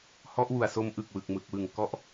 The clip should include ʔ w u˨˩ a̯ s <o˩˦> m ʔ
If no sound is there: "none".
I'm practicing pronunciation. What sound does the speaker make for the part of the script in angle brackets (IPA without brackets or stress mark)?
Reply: o˦˥